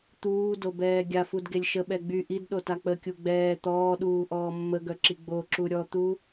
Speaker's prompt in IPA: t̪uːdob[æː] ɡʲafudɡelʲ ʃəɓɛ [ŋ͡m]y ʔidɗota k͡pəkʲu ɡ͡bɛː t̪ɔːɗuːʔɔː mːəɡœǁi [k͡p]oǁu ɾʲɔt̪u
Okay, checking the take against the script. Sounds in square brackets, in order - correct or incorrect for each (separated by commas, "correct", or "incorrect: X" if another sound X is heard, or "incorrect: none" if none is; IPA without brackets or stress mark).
incorrect: ɛː, incorrect: ɡ͡b, incorrect: ɡ͡b